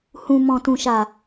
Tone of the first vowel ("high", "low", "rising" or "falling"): low